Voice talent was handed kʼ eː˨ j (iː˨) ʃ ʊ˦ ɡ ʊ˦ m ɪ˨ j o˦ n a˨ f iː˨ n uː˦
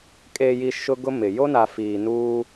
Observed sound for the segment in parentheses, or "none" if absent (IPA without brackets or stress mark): i˨